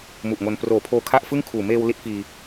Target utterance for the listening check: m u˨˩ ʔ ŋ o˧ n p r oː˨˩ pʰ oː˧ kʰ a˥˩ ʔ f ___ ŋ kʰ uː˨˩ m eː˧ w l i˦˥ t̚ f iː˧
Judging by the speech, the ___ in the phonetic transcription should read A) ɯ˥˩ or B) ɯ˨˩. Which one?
A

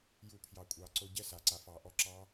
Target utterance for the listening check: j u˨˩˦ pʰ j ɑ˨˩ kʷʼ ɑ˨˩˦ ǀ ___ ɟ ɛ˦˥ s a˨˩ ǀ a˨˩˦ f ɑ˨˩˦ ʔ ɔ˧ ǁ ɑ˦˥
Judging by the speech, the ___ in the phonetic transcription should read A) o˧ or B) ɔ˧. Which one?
A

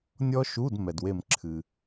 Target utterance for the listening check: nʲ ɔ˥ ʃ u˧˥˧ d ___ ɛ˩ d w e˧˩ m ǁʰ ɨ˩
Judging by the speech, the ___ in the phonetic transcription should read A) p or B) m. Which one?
B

